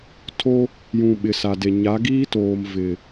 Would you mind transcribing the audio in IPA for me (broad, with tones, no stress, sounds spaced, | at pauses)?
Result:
tʰ o˦ | j ũ˨ ɓ ɪ˨ s a˨ d e˨ ɲ a˨˦ ɡ iː˦ t oː˨ m v ɪ˨